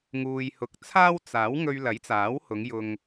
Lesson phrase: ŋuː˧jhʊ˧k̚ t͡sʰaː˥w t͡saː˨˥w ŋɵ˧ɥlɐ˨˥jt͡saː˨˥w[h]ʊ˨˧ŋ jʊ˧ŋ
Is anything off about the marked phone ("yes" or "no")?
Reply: no